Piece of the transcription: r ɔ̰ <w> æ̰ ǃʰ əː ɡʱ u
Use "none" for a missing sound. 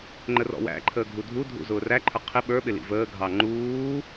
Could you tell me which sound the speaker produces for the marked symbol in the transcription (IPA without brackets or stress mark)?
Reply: w